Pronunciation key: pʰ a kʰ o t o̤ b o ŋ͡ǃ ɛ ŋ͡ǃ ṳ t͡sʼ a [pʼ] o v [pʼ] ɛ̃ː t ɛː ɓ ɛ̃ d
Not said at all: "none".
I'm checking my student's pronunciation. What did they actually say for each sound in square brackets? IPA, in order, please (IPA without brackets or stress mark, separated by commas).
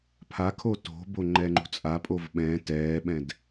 pʼ, ɓ